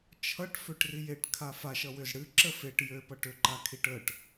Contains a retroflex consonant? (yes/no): yes